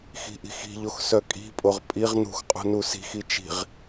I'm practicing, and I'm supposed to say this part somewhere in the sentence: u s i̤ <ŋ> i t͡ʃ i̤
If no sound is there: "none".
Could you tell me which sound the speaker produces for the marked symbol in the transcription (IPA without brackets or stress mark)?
x